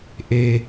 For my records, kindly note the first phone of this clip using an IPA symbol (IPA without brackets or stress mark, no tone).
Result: ʔ